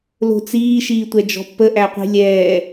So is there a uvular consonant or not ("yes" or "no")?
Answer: yes